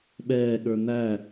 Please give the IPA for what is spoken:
ɓ ɛː ɠ ə˞ n̪ æ

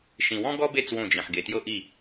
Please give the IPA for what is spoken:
ʃ ĩ˨ w ɔ̃˦ ɡ ɔ˦ b e˦˨ t͡s w õ˦˨ d͡ʒ ĩ˨ ħ ɡ e˨ t j ɤ˦ ʔ i˦˨

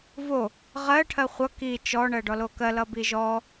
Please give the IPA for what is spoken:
v o | ʁ ɜ ʈʰ ɜ χʷ ʌ k i t͡ʃ ɔ ɳ ɜ ɖ ɔ l o k ɜ l ʌ b i ʒ ɔ

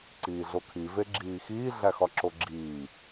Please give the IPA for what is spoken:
ǀ iː ɮ o kʰ i v e ɡ͡ǁ iː x iː ɮ æ x ɒ ǁ o ɡ͡ǁ iː

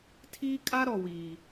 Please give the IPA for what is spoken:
tʰ iː˦ kʼ a˦ ɾ ɔ˨ w iː˨

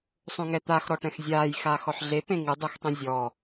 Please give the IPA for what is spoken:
sˤ õ ŋ ɛ t̪ a x ɾ ɔ ʈ ɛ̃ x zʲ aː j x aː x ɔ ħ ɮ e p ẽ ŋ ɨ dˤ e x tˤ õ zʲ ɔ

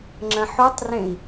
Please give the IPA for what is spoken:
ŋ͡ǁ ɐ̃ ħ u tˤ r ẽ i̯

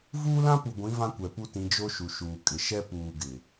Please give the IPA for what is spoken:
v uː˦ l ã˦ p u˨ ɡʷ ĩ˨˦ v ã˦ kʷ ɛ˨ p u˦ t ĩ˨˦ d͡ʒ o˦ ʃ u˨ ʃ uː˨ kʼ ɪ˨ ʃ ɛ˦ p uː˨ ɡ ɪ˨

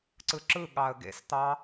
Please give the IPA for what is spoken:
ǀ ɯ ǁ ɯ ɠ ɑ ə̯ ɡ ḛ s t̪ ɑ

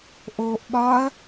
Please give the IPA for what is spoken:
ʔ oː ʔ ɓ ɒ ɐ̯

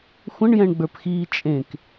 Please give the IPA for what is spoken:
xʷ ə̃ ɳ j ɛ̃ ɳ ɡ͡b ə˞ p x iː t͡ʃʼ ẽ k

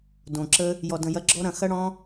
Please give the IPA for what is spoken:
d õ˨ ǁ ə˦ | j ɔ˨ d ə̃˨ j ɐ˨˦ ɡ͡ǁ ɔ˦ ɾ ɐ̃˧ x ɐ˦ ɽ ɔ̃˦

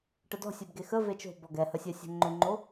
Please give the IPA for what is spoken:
ʈ ə d ɔ̤ sʲ ɛ b ɡ e x ə v e t͡ʃ o̤ b ɔ ɡ ɛ h ə sʲ ɛ sʲ ɛ̤ ŋ͡ǃ ø ŋ͡ǃ o

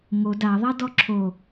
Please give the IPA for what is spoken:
ŋ o d a ðˤ a d ɔ ǁʰ o

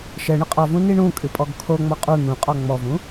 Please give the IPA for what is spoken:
ʃ ɛ ɳ ɨ qʼ ɔ v ũ n i ɳ ũ kʼ ɨ pʼ ɔ ɡ kʰ o ŋ͡m ɔ qʼ u n̪ ũ qʼ ɔ ŋ͡m ɔ v ũ

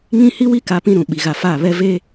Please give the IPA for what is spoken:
ŋ ĩ˦ h i˦ w i˦ k a˦ p ĩ˦ ɾ ũ˨ ɓ i˨ ɣ a˨ f a˦˨ β ɛ˦ v eː˦

